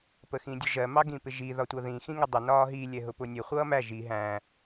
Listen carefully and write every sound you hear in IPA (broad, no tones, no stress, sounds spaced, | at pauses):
p ə x ĩ dʲ ʊ ʒ ɜ m ɑ ɡ ĩ p ɪ ʒ i ð ɒ tʷ ʌ ð ĩ x ĩ ŋ ə dˤ ʊ n ɒː ɦ i lʲ ɛ ɦ ʊ p ʊ nʲ ə χʷ ʌː m æ ʒ i ɦ æ̃